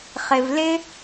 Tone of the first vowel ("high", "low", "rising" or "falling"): low